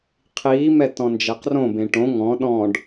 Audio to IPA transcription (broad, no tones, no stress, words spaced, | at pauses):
qʰiːmɛ tɔ̃nd͡ʒɛqrõbẽ ʈõ ŋɔ̃ ɗɔ̃ɖ